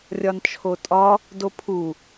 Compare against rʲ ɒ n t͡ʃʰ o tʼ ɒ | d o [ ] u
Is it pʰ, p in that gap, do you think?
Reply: pʰ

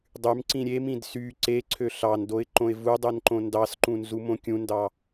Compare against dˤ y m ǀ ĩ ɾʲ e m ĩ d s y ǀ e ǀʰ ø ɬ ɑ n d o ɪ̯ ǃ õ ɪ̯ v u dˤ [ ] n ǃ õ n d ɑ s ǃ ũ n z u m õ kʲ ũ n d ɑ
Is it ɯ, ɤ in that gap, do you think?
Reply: ɯ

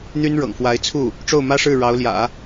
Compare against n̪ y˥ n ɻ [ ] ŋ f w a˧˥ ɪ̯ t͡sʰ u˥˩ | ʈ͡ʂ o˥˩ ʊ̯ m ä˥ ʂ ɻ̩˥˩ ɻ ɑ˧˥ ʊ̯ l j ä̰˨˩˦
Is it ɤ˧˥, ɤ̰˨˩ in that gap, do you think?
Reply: ɤ̰˨˩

